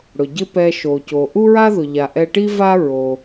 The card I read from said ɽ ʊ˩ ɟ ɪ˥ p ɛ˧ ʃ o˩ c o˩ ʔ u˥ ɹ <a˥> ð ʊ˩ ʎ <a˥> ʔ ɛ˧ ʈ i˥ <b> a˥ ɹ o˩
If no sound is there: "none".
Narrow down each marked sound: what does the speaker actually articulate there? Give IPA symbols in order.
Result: a˥, a˩, v

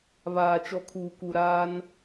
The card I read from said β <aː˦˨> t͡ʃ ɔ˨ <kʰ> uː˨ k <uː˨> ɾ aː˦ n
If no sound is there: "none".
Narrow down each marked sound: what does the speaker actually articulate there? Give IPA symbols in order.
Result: aː˨, kʰ, u˨

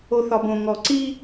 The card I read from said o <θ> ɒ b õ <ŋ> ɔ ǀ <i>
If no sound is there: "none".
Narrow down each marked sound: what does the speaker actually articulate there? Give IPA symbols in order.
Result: θ, ŋ, i

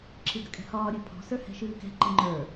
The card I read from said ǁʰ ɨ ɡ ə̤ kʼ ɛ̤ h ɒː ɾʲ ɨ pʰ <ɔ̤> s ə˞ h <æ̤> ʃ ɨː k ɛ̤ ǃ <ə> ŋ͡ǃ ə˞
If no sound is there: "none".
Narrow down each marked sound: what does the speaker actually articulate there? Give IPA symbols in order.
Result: ɔ̤, ɛ̤, ə

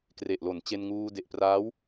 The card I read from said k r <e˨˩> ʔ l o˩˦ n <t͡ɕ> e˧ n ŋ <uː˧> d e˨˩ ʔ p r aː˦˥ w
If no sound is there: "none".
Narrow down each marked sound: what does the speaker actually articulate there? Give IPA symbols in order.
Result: e˨˩, t͡ɕ, uː˧

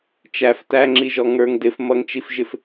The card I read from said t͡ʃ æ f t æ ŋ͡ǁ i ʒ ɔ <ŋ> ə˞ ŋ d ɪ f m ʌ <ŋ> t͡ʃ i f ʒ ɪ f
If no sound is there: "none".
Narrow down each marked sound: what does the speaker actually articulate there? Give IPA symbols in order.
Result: ŋ, ŋ

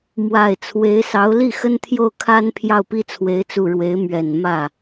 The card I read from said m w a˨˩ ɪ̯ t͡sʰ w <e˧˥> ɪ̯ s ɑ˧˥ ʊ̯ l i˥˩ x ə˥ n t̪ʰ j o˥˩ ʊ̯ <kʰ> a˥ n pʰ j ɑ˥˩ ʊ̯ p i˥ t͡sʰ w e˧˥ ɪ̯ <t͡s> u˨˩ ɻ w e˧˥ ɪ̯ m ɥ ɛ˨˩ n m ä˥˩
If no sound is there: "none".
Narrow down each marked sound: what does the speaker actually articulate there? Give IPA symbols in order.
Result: e˧˥, kʰ, t͡s

